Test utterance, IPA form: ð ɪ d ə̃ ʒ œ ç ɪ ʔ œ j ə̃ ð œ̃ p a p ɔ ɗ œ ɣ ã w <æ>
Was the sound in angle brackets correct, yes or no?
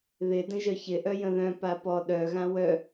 no